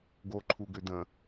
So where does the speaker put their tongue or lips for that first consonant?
velum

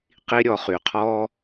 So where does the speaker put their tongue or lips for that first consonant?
uvula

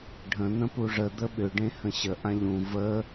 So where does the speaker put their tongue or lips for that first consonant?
retroflex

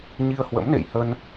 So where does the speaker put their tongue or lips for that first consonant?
palate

